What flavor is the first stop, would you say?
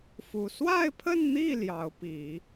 aspirated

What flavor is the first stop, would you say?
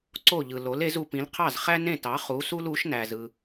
click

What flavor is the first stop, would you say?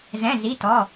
plain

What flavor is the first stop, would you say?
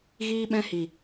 implosive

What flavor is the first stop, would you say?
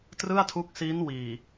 plain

